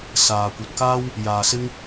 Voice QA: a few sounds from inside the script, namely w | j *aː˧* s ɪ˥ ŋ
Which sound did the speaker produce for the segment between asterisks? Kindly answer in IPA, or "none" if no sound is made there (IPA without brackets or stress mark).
aː˧